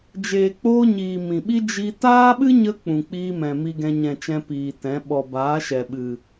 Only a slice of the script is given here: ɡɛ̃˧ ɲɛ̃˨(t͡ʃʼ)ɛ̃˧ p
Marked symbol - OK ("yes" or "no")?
no